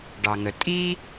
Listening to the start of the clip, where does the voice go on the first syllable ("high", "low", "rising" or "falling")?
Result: low